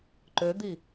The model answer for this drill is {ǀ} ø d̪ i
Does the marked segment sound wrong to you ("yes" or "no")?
yes